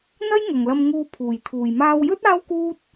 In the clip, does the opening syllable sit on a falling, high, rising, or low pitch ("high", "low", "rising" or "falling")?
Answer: high